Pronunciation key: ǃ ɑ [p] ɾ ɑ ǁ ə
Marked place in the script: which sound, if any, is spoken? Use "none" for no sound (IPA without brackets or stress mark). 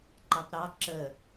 p